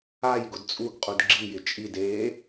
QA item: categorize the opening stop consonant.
plain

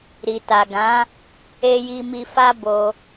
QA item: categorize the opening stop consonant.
plain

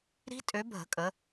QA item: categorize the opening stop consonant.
ejective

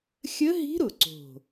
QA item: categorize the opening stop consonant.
click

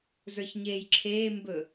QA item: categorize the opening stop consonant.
click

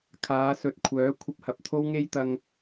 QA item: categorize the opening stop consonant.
aspirated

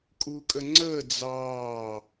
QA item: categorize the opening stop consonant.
ejective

